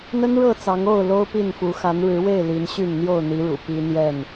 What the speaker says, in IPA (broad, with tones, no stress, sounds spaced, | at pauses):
n̪ ə˦ n ɻ ɤ˥˨ t͡s ɑ˨˦ ŋ o˥˨ ʊ̯ l o˦ ʊ̯ p i˥˨ n f u˨˦ x a˨˦ n ɻ ɻ̩˨˦ w e˥˨ ɪ̯ l i˨˦ n ɕ y˥˨ n n̪ j o˥˨ ʊ̯ n̪ i˨˦ ɻ ṵ˨˩ p i˦ n̪ j ɛ˥˨ n